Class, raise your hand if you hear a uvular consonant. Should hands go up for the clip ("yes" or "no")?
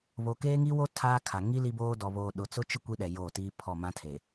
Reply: no